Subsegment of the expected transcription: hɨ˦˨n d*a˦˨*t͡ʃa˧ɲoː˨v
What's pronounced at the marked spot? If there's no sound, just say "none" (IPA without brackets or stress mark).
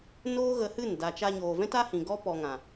a˨